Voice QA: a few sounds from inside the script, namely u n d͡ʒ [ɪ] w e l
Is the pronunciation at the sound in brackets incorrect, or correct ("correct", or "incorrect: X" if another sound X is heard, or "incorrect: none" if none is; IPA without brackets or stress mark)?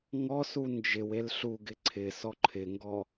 correct